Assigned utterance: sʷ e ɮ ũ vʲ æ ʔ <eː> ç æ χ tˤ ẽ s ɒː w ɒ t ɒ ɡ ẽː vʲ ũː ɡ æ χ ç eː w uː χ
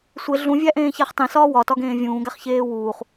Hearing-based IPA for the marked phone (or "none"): ẽː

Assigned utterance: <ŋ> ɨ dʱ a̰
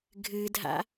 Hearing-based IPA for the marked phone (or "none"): ɡʱ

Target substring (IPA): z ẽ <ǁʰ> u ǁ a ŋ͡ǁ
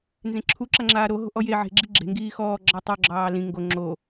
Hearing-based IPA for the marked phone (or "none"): ǁʰ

